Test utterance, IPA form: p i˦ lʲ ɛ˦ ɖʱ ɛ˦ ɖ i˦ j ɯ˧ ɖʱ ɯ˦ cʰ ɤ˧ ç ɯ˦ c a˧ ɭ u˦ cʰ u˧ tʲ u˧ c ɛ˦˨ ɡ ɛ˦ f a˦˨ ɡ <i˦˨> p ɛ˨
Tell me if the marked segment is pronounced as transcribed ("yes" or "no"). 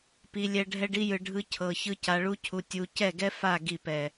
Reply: yes